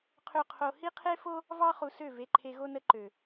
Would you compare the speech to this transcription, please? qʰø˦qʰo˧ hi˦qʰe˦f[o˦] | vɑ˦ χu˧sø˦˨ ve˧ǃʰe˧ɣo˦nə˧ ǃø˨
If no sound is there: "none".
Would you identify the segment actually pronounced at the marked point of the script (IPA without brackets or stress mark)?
o˦